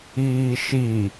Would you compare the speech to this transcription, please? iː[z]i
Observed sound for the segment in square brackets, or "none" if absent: ʃ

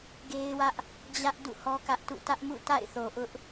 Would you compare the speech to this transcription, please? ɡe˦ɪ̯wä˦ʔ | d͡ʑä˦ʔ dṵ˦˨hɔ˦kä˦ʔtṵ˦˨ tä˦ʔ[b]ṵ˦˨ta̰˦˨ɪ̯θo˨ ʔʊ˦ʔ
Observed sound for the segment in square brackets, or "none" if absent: m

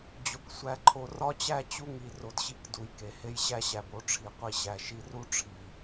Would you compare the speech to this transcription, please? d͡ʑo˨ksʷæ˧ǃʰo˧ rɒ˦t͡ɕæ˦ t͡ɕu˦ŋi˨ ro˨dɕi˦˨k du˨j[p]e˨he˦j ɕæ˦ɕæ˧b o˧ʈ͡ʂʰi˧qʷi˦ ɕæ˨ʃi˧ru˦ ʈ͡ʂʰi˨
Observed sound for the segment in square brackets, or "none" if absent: k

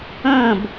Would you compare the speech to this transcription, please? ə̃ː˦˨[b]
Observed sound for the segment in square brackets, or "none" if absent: b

